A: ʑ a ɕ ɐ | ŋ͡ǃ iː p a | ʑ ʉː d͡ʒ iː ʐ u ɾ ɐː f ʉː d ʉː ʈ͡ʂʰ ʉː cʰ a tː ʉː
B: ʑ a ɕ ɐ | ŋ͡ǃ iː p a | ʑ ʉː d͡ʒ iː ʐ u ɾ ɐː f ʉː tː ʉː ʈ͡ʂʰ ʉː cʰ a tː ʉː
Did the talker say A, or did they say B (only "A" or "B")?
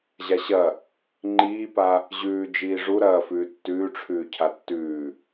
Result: B